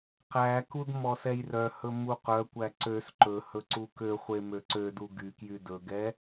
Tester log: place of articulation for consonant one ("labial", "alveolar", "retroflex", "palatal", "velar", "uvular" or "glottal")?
uvular